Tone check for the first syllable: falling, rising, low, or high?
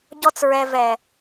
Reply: high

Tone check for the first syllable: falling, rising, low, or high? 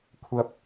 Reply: low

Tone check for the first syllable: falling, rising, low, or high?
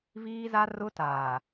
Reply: high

